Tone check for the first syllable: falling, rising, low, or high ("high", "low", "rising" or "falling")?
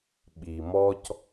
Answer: low